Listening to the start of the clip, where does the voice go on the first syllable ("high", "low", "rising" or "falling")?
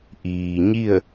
low